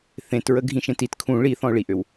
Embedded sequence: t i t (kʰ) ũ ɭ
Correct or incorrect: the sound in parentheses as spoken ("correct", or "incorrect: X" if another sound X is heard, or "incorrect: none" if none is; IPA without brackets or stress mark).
correct